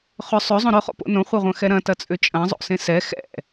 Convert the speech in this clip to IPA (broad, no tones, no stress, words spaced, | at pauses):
χʏ sˤøzˤõ ɾøχo̰po̰ nõχʷɛʁʷɐ̃xɛ ɾɐ̃tɐt͡sʼʏ t͡ʃʼɐ̃zˤo̰sẽ sɛ xɛ̰